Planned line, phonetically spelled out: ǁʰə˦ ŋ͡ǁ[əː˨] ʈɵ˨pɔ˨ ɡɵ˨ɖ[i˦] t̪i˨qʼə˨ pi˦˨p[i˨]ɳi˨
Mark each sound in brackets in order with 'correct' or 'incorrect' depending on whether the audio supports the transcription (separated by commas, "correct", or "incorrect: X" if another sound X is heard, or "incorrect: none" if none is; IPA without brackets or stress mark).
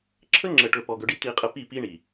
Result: incorrect: ə˨, correct, incorrect: i˦